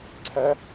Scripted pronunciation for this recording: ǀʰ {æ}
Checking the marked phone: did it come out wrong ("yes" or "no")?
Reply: no